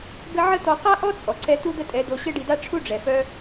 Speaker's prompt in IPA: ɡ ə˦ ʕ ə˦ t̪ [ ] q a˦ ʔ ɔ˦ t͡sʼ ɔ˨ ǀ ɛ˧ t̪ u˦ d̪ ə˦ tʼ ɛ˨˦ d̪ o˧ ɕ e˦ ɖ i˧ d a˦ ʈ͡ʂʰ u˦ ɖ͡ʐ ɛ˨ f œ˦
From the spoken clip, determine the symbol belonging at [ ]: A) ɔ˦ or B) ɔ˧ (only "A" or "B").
B